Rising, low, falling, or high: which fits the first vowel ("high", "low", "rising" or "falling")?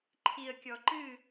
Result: low